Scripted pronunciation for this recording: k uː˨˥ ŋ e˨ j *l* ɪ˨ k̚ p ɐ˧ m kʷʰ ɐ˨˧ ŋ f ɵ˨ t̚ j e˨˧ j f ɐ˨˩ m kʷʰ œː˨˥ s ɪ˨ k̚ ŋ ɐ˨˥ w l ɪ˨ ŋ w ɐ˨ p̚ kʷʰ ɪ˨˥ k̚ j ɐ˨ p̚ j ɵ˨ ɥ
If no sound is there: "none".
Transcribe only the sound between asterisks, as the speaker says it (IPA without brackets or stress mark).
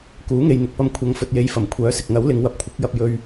n̪